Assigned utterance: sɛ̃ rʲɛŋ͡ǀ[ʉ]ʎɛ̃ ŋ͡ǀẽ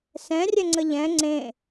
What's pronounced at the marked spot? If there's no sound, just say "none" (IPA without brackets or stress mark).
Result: ə